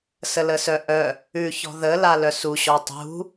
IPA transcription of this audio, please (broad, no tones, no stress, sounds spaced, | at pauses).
s ə l ə s œ ʔ œ | ʉ ç ɔ̤ ð ə l a l œ s u ɕ ɔ tˤ ṳ